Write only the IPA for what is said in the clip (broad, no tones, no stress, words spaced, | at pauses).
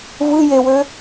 vɯ jewø